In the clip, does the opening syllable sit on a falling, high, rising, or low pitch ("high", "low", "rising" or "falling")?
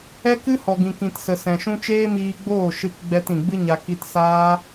high